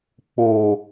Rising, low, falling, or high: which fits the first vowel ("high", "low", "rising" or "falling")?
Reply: low